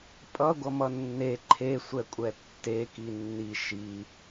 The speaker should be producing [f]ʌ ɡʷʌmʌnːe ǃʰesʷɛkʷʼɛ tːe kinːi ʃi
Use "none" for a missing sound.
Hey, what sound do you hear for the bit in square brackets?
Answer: pʼ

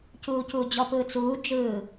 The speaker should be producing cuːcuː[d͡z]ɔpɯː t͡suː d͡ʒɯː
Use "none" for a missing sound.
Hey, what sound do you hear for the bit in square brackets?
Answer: d͡ʑ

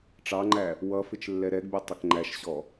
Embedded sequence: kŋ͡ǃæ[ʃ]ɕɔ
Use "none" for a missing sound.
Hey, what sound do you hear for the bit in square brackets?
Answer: ʃ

